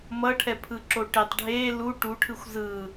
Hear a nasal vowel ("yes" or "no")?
no